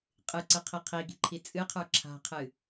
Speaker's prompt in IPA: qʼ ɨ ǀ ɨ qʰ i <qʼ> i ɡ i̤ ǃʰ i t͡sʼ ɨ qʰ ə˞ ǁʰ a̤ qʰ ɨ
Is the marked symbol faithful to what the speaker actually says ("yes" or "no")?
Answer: no